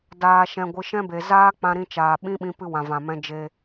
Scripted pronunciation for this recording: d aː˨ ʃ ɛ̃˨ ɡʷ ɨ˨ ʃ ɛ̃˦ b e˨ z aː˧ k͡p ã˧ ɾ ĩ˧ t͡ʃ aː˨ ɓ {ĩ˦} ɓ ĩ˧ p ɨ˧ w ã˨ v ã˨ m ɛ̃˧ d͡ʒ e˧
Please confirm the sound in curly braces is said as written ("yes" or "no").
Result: yes